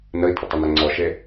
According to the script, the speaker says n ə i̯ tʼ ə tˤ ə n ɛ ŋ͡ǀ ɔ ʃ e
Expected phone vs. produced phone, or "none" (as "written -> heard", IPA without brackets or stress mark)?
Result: none